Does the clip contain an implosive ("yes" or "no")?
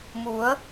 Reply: no